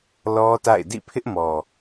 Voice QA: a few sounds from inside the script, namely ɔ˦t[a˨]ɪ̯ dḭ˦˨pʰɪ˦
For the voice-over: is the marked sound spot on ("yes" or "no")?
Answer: no